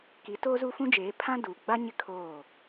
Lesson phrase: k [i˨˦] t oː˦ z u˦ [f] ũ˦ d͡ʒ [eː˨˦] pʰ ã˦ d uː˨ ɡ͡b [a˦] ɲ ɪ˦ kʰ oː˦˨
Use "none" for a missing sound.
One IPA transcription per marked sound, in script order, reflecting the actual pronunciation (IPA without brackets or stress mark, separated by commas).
i˨˦, f, eː˨˦, a˦